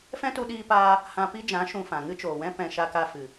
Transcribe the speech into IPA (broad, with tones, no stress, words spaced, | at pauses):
fɛ̃˦tu˧ɗiː˧paː˧ | hã˧pi˦d͡ʒã˨˦ ʃũ˧fã˨ ŋɨ˦t͡ʃoː˨wɛ̃˦ pɛ̃˨ ʃa˧ka˧ fɨ˨